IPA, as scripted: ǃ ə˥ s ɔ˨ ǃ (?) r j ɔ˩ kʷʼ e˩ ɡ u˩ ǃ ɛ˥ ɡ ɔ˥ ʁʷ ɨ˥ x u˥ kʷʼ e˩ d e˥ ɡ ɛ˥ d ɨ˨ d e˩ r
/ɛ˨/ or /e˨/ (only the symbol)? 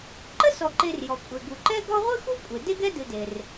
e˨